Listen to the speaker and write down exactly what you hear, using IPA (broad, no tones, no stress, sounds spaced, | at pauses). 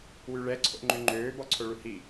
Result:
w y ɭ ɛ ǀʰ o̰ ŋ͡ǃ ʉ ŋ͡ǃ øː b ɔ ǀʰ o ɭ u h i